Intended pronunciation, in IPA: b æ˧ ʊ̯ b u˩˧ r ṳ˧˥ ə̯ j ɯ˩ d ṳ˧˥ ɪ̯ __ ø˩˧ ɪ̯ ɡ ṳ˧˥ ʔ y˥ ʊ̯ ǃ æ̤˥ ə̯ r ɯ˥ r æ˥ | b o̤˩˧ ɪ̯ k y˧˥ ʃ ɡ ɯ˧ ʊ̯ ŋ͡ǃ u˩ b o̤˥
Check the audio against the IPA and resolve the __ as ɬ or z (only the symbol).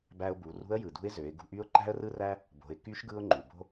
z